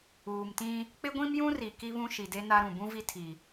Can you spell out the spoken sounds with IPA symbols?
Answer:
uː˨ m t ĩ˦ | k͡p ɪ˦ ɡʷ ĩ˦ m j ũ˦ r i˨ k i˦ β ũ˦ ʃ i˨ d e˦ n a˦ ɾ ũ˨ b ũ˦ v i˦ tʰ i˨

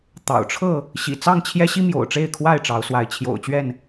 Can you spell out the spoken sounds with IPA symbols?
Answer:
t̪ ɑ̰˨˩ ʊ̯ ʈ͡ʂʰ ɤ˥˨ | ɕ ḭ˨˩ t͡s ɑ˥˨ ŋ t͡ɕʰ j ɛ˦ ɕ i˦ m j o̰˨˩ ʊ̯ ʈ͡ʂ e˥˨ ɪ̯ kʰ w a˥˨ ɪ̯ ʈ͡ʂ ɑ˨˦ ʊ̯ s w a˨˦ ɪ̯ t͡ɕʰ j o̰˨˩ ʊ̯ t͡ɕ ɥ ɛ˥˨ n

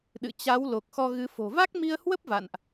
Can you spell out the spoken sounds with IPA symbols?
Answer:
ɗ ɨ̰˧˨ t͡ɕ a˨˦ w l o˨˩ k̚ x ɔ˧ ɣ ɨ˨˦ f o̤˨˩ v a˦˥ k̚ m i˧ ə̯ h w ə˦˥ p̚ v a̰˧˨ n ʔ

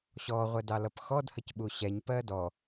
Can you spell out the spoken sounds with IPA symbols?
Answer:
ɕ ɔ ʁʷ ɛ d ɑ l ʌ p x ɔ d h ə c ɓ u ɕ ɛ ɲ p ɜ d ɔ

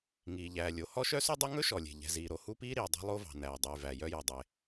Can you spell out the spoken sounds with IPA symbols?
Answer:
ŋ iː˩ ʎ æː˩ lʲ o˩ h ɔ˥ ʃ œ˥ s ʉ˥ dˤ ʉ˥ ŋ ɵ˥ ʃ ɔ˩ lʲ e̤˩ ʎ ɛ̤˩ z iː˩ ɾ o˩ h u˥ p iː˥ ɾ iː˩ dˤ ɛ̤˥ lˠ o˥ v ɑ̤˩ n æː˩ dˤ yː˩ v æ˩ j œ˥ j ɔ˩ dˤ e˩

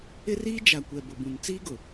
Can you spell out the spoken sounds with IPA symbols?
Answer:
ɪ˦ r iː˦ d͡ʒ a˨ kʷ ɛ˨ b ʊ˨ b ũ˨ n t͡s iː˦ ɡ ʊ˨

